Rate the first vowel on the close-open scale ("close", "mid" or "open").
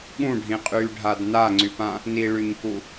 close